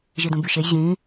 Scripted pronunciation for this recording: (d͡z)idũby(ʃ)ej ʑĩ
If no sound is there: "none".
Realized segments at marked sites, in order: ʒ, ʃ

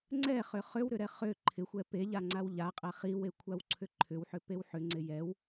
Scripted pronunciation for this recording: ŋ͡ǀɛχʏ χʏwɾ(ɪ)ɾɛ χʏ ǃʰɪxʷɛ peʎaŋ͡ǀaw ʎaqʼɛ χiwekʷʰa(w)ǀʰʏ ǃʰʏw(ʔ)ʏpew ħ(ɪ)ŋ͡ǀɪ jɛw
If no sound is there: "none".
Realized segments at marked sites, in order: ʏ, w, ħ, ʏ

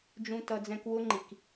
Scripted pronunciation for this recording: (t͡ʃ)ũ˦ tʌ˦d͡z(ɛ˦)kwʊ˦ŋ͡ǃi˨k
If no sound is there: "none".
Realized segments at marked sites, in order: d͡ʒ, ɛ̃˦

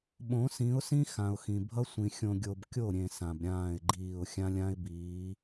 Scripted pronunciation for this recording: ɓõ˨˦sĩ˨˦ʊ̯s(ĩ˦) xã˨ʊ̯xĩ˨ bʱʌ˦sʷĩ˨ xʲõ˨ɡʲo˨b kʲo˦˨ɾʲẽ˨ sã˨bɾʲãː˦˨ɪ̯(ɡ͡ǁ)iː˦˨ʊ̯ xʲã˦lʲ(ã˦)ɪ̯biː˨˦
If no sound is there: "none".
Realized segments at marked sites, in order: ĩ˦, ɡ͡ǃ, ã˦

